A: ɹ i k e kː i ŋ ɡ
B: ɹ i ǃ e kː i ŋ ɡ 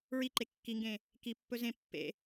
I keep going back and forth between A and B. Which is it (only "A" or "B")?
B